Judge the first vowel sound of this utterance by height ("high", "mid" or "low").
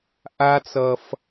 low